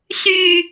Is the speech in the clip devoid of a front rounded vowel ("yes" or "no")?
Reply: no